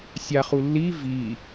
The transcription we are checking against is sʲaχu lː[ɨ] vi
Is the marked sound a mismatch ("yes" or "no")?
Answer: yes